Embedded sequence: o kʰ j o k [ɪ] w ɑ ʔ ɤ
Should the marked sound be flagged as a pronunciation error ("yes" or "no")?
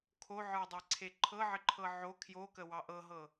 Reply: yes